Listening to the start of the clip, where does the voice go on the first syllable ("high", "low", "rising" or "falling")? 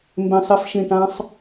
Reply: low